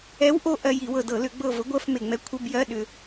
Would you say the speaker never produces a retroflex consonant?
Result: yes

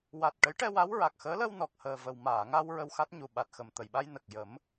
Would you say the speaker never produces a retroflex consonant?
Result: no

